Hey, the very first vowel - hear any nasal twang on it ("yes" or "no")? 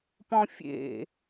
yes